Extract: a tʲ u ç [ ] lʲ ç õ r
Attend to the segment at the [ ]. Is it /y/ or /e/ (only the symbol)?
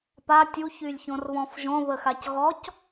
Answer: y